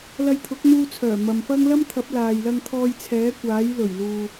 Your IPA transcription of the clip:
lɐ˧jt̪ʰʊ˨˥k̚n̪uː˧t͡sʰœː˨˩ mɐ˨mfɐ˥ŋ lɐ˥mt̪ʰɐ˨˥p̚laː˨jlɐ˧ŋ t̪ʰɔː˧jt͡sʰɛː˨˥kʷaː˨˥j lɵ˨˩ɥluː˨

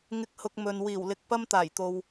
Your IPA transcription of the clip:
ŋɪ˨k̚hʊ˨k̚ mɵ˨n wiː˨˩wlɪ˨k̚ pɐ˥mt̪aː˨˩jt̪o˨w

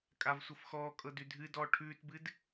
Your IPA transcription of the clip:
kʼavsʷɤfxɔːkʼɤ dʉdʱɨdɔː ʈʰʉːtbɨd

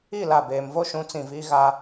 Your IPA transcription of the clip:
i˦˨ la˦˨ beː˨mvo˦ ʃũ˨˦t͡sĩ˨ viː˦ɣa˦

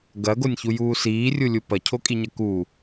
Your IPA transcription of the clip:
ɡɐɡonʲçujuː siːrʲulʲu pɐcʰokʼiɲɐ ku

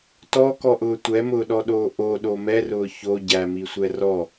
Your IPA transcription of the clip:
tɔkɔʔʊː tʷɛmʊːɗɔɗoː ʔoɗo mɛrʊː ço ɟæmisʷɛ rɔ

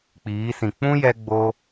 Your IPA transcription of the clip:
k͡piː˨˦sĩ˨ k͡pũ˦jɛ˧ɡ͡bo˧

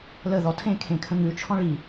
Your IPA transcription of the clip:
lə ðɔtʰẽkʰẽ kʰə̃ŋʉ t͡ʃʰɔ̃ɭi

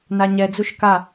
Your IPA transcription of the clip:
naɲɛ d͡zuʃka

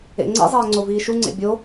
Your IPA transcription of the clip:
ḛŋ͡ǀḛzˤɛː ŋ͡ǀoviːʃuŋ͡ǀḛ bʲo

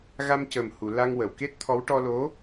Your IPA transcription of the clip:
ɣa˧mcəː˨˩mhu˨˩˨ la˧ŋwə˨˩˨wke˦˥t̚t̪ʰɔ˧˥w ʈɔ˧lo˧˥

